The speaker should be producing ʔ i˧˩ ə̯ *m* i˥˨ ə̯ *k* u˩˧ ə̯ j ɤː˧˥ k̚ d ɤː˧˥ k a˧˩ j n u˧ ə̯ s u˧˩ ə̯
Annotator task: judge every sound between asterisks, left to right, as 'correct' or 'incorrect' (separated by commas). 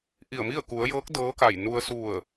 correct, correct